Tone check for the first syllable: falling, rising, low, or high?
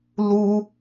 high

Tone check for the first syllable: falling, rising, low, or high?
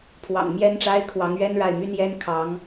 low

